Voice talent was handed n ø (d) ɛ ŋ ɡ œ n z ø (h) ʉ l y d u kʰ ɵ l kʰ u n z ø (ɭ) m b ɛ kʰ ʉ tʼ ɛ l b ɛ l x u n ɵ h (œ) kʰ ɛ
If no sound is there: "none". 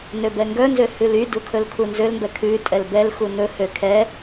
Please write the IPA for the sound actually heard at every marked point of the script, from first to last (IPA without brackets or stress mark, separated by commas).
b, h, l, ø